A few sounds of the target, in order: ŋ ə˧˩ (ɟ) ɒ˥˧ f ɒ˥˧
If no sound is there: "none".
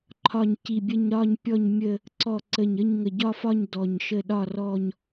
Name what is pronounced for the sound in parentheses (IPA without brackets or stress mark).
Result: ɟ